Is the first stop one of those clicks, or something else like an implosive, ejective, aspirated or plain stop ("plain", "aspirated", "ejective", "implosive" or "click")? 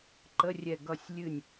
click